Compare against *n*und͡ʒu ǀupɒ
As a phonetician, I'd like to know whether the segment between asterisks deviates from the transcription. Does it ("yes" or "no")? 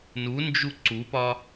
no